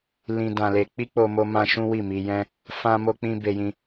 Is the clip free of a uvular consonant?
yes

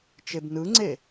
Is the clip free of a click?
no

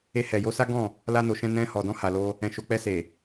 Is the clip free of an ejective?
yes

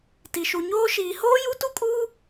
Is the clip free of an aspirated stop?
yes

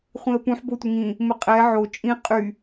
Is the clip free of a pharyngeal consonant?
no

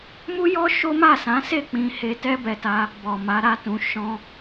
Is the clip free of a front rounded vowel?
yes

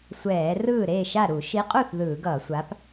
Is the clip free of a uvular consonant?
no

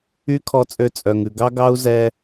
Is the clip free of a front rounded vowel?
no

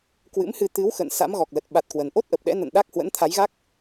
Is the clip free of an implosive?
no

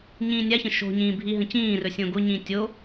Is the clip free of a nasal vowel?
no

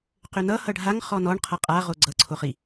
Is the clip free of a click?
no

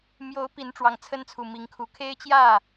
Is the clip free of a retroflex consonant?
no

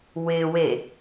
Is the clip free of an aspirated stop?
yes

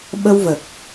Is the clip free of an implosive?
no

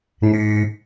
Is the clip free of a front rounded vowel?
no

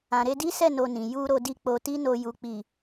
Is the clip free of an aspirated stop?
yes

